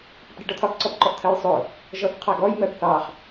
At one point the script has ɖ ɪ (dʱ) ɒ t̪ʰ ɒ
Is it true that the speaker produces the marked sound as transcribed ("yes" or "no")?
no